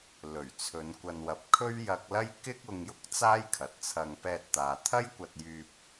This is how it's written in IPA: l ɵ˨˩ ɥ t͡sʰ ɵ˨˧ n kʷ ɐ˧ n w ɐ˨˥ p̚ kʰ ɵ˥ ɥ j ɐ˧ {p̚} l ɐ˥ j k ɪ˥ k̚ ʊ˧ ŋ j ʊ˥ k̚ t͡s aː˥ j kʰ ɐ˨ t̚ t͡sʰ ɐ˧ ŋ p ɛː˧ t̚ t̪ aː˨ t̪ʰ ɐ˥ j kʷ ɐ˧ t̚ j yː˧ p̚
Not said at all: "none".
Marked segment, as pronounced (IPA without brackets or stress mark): k̚